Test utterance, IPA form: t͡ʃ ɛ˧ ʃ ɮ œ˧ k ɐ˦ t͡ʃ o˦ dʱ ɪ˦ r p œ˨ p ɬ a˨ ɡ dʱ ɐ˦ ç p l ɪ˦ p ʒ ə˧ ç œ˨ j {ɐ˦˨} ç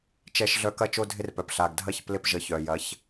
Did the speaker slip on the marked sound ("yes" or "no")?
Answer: yes